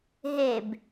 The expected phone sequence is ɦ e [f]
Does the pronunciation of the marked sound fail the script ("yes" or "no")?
yes